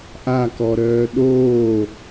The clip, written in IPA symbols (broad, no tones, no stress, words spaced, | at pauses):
ʔakɔɾœː ɗoː